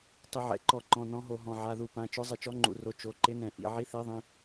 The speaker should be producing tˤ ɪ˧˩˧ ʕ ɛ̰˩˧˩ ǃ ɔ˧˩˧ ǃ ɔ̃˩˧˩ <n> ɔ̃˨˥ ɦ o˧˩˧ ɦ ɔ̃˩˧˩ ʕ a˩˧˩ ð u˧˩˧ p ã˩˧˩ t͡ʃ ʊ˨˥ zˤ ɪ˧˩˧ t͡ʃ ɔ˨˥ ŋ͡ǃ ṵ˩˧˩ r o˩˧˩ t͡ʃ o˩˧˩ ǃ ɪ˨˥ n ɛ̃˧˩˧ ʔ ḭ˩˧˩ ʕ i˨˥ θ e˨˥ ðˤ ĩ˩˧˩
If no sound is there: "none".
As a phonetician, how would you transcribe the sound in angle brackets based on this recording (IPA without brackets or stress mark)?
n